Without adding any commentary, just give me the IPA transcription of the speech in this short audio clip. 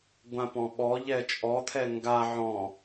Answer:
ɡʷ ã p ɔ̃ ɓ ɔ ʎ ɛ t͡ʃʼ ɔ t̪ʰ ɛ ŋ ɡ a ʕ ɔ̃

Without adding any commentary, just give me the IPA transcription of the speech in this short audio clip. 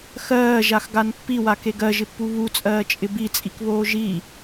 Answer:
x ɜː ʒ a x ɡ a n pː i w a k e ɡ ɜ ʒ ɪ pː u β u t͡sʼ ɜː t͡ʃʼ ɪ b i t͡sʼ i k β oː ʒ i

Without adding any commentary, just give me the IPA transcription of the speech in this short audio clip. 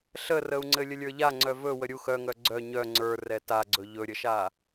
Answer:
ɬ ə r ə u̯ ŋ͡ǀ ɘ lʲ ə lʲ ə˞ ʎ a ŋ͡ǀ œ v ɵ w ə ɾʲ u x œ ŋ œ ɡ͡ǀ œ ɲ œ ŋ͡ǀ ə˞ r ɛ t a ɡ͡ǀ ɵ ʎ ɵ ɾʲ ə ʃ a

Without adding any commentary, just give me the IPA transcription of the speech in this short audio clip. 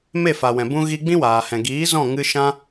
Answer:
m e˦˨ f a˨ w ɛ̃˨ b ũ˧ ɣ i˧ ɡ͡b ĩ˦ w aː˨ h ɛ̃˨ ɡ iː˨˦ z ɔ̃˦˨ ŋ ɨ˧ ʃ ã˦

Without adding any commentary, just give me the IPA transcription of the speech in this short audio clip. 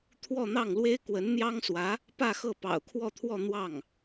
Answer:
t̪ʰ w ɔ˥˧ n̪ ɑ˥˩ ŋ l w e˥ ɪ̯ k w ə˧˥ n n̪ j ɑ˥ ŋ s w ä˧˥ | p ä˥˧ x ɤ˥˩ p ɑ̰˨˩ ʊ̯ kʰ w ɔ˥˧ t̪ʰ w ɔ˥˧ n̪ w ɑ˥˩ ŋ

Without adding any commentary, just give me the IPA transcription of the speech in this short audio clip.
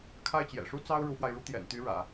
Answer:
kʰ a˥˩ ɪ̯ t͡ɕ j ɛ̰˨˩ ʂ u˥ t͡s ɑ˥ ʊ̯ ɻ u˧˥ f w a˧ ɪ̯ ɻ u˥ t̪ j ɛ̰˨˩ n t̪ y˧˥ ɻ ä̰˨˩˦

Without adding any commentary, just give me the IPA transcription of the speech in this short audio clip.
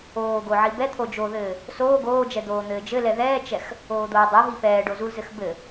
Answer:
oː ɡ o ʕ i b ɛ t̪ʰ o d͡ʒ o ð ɘː | s oː ɡ oː d͡ʒ ɛ d̪ oː n̪ ɘː d͡ʒ ɘ l ɛ ð ɛː t͡ʃ ɛ x | oː d̪ oː dˤ ɛ ɦ i p ɛː ɖ o z u l z ɘ x b ɘ

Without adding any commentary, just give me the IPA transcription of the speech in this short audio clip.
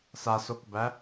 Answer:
s a s o k b æ

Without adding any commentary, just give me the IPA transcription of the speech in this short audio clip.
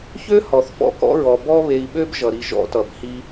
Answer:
ç ø˦ h ɔ˨ θ f ɔ̰˦ k ɔ̰˦ ɹ ɔ˨ b ɔ˧ β e˨ i̯ ɓ ø˧ b ʒ ʌ˨ ɾ i˧ ʒ ɔ̰˦ t ʌ˨ b h i˦

